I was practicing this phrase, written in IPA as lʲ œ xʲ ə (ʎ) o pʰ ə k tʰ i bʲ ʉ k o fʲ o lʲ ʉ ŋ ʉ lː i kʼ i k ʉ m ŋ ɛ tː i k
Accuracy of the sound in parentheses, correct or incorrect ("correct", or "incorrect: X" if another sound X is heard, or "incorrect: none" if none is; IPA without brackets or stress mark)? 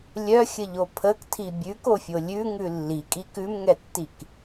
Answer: correct